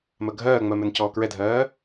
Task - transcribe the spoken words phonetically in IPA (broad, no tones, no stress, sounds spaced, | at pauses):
m ɜ ɡʱ ɜː ŋ͡m ɜ m ɛ n c ɔː k ɹ ɛ dʱ ɜː